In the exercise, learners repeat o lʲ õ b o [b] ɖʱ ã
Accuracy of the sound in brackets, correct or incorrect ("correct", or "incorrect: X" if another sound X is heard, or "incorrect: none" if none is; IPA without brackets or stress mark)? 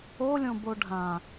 incorrect: none